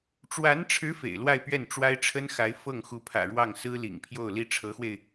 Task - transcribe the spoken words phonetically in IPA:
ʈ͡ʂ w a˧˥ n ʈ͡ʂʰ ɻ̩˧˥ f ḛ˨˩ ɪ̯ l w a˥˧ ɪ̯ p ɥ ɛ˥˩ n ʈ͡ʂ w a˥ ɪ̯ ʈ͡ʂʰ ə˥ n x a˧˥ ɪ̯ f ɤ˥˩ ŋ x u˧˥ pʰ ä̰˨˩ ɻ w ɑ˥˩ ŋ s ɹ̩˥ l ḭ˨˩ ŋ pʰ j o˥˩ ʊ̯ l i˥ ʈ͡ʂʰ ɤ˧˥ x w e˧ ɪ̯

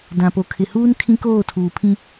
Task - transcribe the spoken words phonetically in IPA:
d ã˨ p o˨ kʰ ɪ˨ h uː˦ n kʰ ĩ˦ k oː˦˨ tʰ uː˨ pʰ ĩ˦

